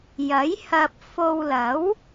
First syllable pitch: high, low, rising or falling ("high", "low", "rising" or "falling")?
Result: rising